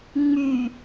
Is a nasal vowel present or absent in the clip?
absent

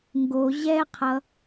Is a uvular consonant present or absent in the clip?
present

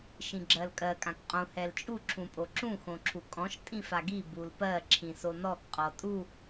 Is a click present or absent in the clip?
present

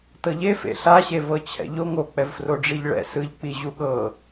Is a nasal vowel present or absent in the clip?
absent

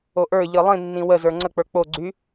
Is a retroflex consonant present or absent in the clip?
absent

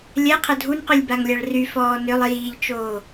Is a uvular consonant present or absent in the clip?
present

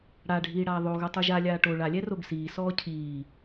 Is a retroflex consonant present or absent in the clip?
present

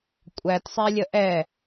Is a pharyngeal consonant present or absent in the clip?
absent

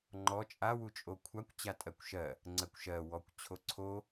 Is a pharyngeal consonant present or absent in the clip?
absent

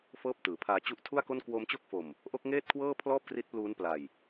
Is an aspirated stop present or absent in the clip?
present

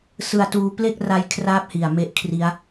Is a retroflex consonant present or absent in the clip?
absent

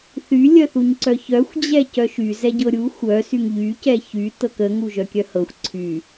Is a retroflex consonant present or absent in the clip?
absent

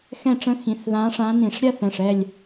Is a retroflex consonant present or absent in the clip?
present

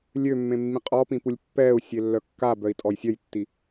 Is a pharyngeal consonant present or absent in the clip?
absent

